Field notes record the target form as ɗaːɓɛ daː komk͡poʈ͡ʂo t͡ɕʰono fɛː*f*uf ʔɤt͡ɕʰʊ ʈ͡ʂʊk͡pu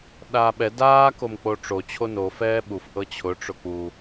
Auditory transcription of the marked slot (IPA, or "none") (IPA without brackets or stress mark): ɓ